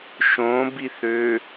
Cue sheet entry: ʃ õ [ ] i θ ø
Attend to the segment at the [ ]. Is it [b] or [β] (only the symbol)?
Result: b